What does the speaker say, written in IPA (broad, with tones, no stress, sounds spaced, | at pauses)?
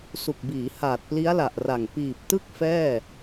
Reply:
s u˨˩ k̚ b iː˩˦ h aː˨˩ t̚ p l i˦˥ a̯ l a˨˩ ʔ r a˨˩ ŋ p iː˨˩ p̚ t ɯ˥˩ k̚ f ɛː˥˩